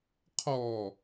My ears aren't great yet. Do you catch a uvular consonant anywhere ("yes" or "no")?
yes